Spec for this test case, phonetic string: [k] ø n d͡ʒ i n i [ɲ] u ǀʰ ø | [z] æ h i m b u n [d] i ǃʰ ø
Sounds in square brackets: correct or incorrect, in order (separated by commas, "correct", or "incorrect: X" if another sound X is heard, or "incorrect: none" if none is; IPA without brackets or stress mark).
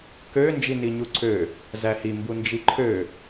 correct, correct, correct, incorrect: d͡ʒ